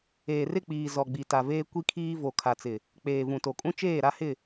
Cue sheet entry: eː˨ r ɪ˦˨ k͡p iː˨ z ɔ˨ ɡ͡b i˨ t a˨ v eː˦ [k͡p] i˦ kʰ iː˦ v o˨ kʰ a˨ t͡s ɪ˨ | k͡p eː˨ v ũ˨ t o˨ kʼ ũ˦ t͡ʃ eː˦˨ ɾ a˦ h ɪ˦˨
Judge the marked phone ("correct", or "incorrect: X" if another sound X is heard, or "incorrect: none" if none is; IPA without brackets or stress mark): incorrect: kʷ